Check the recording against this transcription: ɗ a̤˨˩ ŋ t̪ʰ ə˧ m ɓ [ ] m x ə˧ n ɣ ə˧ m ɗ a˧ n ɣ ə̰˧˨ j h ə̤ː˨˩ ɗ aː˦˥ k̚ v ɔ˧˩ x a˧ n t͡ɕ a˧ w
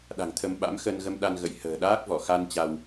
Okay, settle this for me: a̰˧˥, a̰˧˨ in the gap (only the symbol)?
a̰˧˥